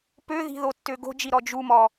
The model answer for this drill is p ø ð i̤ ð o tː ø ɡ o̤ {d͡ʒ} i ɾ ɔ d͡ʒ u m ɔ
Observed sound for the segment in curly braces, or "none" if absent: d͡ʒ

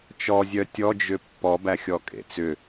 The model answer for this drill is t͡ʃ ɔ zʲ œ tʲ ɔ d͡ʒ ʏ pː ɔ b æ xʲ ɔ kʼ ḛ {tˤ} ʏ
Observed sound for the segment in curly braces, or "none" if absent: t͡s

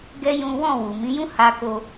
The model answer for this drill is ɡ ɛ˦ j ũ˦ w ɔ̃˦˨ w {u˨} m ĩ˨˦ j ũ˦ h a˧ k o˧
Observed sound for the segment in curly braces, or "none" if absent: u˨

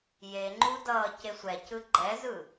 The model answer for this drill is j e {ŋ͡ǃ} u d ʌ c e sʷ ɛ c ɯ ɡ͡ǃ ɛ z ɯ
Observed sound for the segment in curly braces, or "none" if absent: ŋ͡ǃ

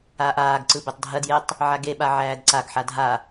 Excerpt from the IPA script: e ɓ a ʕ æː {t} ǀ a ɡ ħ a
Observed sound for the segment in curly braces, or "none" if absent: d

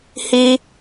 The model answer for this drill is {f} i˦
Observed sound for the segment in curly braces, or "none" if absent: h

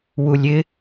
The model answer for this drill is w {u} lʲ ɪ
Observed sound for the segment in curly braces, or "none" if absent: u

